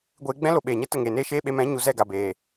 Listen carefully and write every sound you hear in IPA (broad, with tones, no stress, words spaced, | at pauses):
ɡʷeː˧ɡ͡bɛ̃˦ lo˧ɓeː˨ɲɛ˦ tə˦˨ŋeː˨neː˦ʃeː˦ ɓe˧mɛ̃˨˦ ɲu˧zɛ˦˨ɡa˨beː˨